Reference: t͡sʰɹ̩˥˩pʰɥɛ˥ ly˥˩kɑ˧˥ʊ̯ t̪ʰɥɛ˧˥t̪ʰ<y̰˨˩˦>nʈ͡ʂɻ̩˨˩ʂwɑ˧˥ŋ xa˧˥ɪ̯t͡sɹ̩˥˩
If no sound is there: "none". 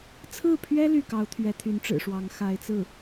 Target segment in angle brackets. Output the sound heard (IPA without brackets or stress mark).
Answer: y˧˥